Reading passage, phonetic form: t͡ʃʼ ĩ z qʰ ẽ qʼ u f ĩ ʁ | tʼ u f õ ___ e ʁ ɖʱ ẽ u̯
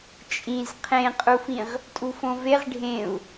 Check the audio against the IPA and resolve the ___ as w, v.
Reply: v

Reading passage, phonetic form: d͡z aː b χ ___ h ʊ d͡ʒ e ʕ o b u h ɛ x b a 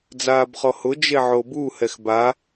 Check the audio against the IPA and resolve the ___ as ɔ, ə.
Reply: ɔ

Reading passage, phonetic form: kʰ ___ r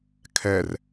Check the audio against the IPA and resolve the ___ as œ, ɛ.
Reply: ɛ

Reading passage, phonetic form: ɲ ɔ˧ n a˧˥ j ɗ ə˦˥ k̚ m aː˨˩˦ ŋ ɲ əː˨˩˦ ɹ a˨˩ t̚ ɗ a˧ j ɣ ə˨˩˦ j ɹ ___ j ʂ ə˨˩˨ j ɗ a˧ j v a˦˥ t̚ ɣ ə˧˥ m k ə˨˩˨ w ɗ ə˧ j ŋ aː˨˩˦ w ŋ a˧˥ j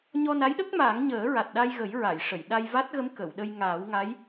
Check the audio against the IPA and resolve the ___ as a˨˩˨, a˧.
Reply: a˨˩˨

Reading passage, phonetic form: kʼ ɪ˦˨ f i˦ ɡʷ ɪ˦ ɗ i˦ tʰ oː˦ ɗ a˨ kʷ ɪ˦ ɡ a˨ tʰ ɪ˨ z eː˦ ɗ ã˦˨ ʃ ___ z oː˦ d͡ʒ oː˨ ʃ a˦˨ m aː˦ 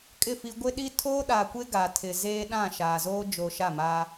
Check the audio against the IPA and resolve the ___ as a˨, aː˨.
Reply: aː˨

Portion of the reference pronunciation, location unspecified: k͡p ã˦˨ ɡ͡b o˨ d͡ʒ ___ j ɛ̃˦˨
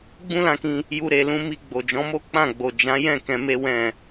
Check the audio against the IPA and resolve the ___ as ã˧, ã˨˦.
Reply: ã˨˦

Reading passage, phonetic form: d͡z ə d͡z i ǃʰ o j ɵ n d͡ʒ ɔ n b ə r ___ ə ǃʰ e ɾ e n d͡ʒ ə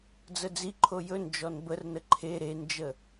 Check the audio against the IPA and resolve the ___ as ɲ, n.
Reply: n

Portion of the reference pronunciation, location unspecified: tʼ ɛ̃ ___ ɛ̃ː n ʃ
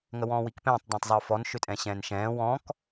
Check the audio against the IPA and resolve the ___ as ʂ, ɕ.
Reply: ɕ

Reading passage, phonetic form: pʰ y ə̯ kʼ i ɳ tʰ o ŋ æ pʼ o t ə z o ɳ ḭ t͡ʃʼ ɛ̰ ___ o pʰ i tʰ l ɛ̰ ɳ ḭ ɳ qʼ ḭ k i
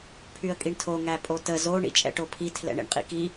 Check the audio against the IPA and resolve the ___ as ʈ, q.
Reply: ʈ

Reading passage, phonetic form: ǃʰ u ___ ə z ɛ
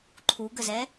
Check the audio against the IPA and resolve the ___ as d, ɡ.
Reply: ɡ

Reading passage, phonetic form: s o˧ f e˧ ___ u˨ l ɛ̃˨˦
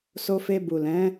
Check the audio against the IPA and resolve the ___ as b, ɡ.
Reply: b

